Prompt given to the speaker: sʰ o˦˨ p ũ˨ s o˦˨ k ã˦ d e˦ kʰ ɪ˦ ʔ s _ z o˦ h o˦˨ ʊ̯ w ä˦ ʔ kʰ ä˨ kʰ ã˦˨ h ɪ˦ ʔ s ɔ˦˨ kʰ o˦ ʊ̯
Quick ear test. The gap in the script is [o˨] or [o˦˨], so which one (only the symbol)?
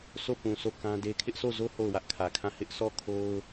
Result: o˦˨